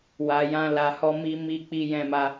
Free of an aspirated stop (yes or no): yes